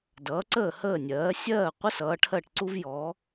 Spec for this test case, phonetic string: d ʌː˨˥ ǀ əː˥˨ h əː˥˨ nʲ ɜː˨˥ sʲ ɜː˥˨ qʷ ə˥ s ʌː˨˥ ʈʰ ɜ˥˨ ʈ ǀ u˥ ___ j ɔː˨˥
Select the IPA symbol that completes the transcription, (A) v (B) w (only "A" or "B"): A